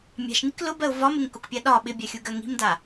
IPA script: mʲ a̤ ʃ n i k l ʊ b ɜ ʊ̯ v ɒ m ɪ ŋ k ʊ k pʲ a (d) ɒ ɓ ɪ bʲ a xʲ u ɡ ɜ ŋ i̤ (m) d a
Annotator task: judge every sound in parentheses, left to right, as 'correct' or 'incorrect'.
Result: incorrect: ɗ, correct

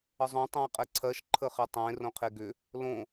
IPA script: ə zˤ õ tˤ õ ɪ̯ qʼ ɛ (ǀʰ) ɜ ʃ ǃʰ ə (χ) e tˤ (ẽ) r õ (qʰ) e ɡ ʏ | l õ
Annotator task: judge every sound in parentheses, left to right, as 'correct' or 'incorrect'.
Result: correct, correct, correct, correct

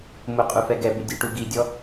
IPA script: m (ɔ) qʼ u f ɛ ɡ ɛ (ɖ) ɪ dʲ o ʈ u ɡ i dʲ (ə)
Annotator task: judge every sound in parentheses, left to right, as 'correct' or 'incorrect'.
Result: incorrect: ʊ, incorrect: b, incorrect: ɔ

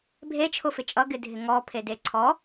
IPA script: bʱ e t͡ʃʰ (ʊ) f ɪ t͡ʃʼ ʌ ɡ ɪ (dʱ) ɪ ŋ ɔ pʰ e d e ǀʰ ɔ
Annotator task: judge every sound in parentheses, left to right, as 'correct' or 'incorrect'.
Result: correct, correct

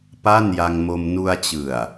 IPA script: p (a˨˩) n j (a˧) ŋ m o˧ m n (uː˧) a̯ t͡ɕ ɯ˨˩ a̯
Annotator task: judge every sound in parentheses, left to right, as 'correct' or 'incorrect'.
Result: incorrect: a˥˩, correct, incorrect: u˧

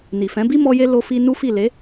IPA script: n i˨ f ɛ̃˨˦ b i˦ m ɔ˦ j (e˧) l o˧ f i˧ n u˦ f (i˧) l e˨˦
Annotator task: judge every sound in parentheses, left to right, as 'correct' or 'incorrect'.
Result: incorrect: e˦, incorrect: i˦˨

